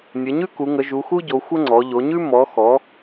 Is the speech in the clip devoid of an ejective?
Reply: yes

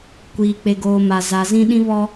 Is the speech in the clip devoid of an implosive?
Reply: no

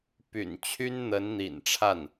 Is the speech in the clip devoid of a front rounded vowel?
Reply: no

